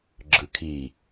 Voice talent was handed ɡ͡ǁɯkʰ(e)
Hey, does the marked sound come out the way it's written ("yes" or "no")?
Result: no